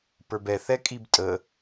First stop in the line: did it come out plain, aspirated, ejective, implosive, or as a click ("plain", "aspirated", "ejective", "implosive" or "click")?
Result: plain